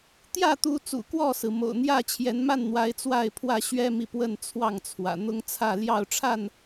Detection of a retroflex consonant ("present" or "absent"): present